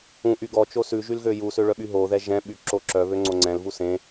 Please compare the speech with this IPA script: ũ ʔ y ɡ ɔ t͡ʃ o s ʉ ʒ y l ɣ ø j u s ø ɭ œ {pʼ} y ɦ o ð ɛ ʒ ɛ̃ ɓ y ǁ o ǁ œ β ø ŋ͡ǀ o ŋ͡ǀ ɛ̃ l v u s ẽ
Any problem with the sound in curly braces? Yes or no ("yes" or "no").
yes